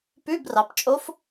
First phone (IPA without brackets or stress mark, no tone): p